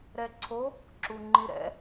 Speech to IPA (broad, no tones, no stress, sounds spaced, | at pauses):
ɾ ɛ ǀʰ o | ǁ u ŋ͡ǃ i ɾ ɛ̰